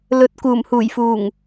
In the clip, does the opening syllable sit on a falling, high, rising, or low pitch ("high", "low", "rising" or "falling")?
low